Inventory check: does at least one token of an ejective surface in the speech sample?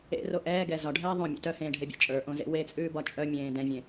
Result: yes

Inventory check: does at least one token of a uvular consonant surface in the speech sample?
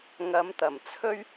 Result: no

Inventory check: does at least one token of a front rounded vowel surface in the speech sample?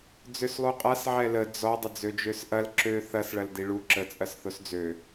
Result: yes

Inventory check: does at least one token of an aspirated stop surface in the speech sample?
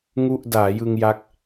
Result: no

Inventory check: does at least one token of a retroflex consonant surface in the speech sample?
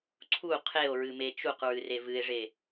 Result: yes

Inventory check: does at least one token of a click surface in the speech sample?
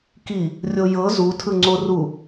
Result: yes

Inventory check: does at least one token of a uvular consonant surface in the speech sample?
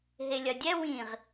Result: yes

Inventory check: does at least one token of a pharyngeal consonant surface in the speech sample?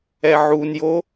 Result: yes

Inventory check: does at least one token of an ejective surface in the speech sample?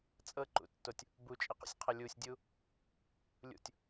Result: yes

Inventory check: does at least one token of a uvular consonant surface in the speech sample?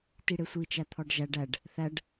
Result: no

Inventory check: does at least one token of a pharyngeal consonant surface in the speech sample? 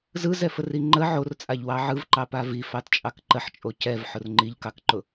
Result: yes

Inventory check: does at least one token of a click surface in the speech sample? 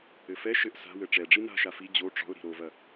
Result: no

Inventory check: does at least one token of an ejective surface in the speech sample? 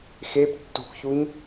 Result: no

